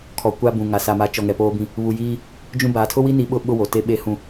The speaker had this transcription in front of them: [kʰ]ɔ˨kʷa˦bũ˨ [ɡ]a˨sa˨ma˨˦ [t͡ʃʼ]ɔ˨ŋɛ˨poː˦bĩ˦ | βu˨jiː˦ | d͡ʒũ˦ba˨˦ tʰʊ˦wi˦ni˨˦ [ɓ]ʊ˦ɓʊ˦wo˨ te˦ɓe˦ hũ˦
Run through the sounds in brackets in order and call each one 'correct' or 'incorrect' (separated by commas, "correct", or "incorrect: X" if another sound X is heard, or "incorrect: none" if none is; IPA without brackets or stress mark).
correct, incorrect: ŋ, incorrect: t͡ʃ, correct